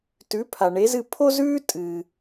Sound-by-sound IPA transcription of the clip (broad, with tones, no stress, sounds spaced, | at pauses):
t ʉ˩˥ pʰ a˩ ɳ e˩˥ z ɨ˥˩ pʰ o˥ z ʉː˥ tʼ ɨː˩